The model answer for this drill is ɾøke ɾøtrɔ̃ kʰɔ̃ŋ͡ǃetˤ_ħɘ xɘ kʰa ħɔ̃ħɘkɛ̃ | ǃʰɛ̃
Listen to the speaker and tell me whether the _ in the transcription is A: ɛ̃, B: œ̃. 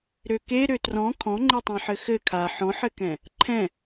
A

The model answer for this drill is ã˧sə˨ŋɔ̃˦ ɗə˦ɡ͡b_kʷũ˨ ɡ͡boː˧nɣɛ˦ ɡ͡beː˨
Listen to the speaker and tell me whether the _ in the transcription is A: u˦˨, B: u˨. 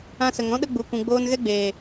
B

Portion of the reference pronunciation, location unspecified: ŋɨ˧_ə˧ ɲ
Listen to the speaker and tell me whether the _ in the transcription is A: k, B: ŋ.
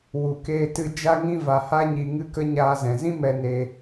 A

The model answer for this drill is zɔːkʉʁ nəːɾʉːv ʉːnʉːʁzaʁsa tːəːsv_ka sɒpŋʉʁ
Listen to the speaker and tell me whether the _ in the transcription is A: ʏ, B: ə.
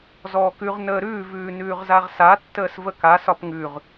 B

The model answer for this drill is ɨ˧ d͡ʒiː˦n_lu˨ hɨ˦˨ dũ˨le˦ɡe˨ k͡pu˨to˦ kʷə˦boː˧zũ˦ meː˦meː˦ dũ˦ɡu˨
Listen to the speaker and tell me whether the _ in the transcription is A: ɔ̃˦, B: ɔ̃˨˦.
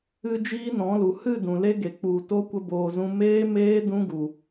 B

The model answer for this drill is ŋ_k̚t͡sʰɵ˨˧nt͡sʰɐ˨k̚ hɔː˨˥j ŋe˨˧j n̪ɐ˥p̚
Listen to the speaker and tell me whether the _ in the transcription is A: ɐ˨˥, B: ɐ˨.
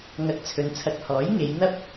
B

